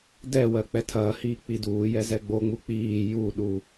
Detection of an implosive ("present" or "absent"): present